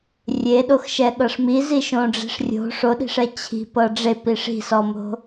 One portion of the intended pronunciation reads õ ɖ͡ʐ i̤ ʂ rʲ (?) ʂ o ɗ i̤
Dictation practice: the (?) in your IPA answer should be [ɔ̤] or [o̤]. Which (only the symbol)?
o̤